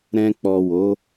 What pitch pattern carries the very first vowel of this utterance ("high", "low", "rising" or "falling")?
low